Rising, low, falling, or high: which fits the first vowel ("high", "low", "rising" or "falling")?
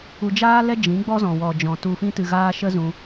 low